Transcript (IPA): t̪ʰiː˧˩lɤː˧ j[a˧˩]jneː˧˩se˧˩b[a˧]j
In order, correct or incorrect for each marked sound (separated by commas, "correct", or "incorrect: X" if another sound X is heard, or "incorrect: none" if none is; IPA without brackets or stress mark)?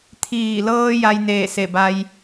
incorrect: a˧, correct